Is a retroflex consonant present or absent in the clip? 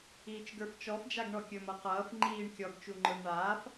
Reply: present